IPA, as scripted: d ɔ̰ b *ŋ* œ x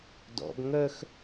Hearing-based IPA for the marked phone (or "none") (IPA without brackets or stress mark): ŋ